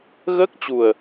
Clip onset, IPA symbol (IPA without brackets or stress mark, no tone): ɣ